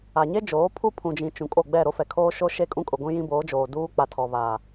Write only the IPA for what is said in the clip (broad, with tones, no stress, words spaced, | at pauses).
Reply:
a˨ɲe˦d͡ʒoː˨˦ pʰu˦pʰũ˨d͡ʒĩ˨ t͡ʃũ˨kʼo˦˨ ɡ͡bɛ˦˨ɾo˦fɛ˨ kʰoː˦ʃo˦ ʃe˦kʼũ˦ kʼʊ˨ ɡʷĩ˦jĩ˦boː˨˦d͡ʒoː˨ duː˦ k͡pa˨tʰɔ˨ βa˨